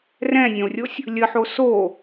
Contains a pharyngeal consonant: yes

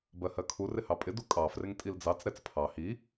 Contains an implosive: no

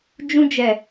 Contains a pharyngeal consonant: no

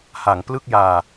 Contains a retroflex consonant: no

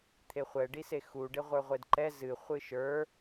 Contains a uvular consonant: yes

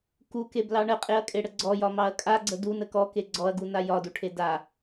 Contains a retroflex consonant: yes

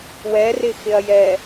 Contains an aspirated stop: no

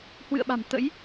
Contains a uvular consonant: no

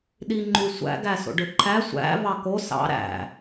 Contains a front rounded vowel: yes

